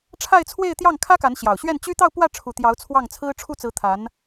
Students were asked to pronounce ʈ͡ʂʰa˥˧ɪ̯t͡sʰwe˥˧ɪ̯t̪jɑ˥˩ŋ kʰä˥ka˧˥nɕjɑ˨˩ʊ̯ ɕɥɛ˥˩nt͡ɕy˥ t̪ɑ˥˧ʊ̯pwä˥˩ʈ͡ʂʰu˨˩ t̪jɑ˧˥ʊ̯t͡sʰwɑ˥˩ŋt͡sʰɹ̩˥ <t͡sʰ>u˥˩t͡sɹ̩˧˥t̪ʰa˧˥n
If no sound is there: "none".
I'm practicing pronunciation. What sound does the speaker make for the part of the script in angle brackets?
ʈ͡ʂʰ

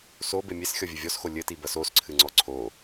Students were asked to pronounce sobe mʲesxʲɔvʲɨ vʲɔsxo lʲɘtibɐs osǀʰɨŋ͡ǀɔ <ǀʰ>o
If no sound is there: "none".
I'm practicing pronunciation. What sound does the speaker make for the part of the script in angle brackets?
ǀʰ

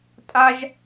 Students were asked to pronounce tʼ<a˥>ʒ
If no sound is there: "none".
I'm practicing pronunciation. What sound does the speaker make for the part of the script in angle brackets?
a˥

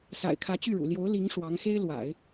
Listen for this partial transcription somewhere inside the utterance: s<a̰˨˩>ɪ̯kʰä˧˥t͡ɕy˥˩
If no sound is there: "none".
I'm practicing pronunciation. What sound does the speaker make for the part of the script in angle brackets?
a̰˨˩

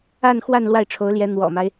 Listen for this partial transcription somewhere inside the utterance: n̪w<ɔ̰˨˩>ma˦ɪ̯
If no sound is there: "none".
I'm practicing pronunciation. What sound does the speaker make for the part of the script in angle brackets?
ɔ̰˨˩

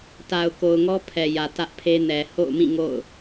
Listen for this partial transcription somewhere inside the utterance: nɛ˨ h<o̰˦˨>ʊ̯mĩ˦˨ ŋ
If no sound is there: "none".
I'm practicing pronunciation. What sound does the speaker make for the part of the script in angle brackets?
o̰˦˨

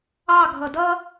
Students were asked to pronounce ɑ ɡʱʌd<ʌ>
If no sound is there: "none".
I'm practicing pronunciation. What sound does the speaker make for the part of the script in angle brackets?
ʌ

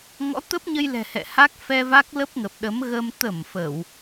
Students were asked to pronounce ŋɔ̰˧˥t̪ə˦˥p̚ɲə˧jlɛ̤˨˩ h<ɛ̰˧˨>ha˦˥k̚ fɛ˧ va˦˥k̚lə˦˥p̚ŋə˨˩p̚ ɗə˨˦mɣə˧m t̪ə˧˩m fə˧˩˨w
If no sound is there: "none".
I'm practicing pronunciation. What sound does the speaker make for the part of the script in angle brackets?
ɛ̰˧˨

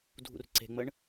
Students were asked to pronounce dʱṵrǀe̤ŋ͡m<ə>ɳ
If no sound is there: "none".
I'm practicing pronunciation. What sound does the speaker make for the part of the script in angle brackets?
ə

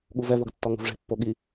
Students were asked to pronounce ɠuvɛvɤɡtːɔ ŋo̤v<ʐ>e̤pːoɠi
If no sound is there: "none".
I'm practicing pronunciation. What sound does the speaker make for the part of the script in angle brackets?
ʐ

